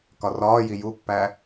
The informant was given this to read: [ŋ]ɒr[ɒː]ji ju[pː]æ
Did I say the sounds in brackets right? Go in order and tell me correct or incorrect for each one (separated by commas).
incorrect, correct, correct